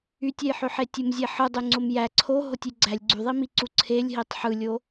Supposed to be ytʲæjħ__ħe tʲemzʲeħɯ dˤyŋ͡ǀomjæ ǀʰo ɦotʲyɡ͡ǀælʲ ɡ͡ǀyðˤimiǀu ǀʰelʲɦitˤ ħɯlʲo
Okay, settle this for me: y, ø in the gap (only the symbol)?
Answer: ø